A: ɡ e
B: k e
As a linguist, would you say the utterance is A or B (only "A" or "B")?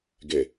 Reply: A